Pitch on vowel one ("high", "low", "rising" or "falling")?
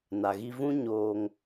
low